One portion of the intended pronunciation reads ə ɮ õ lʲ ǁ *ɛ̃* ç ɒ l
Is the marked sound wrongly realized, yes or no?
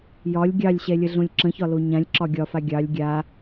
yes